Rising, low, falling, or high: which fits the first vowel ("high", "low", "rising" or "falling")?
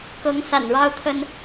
rising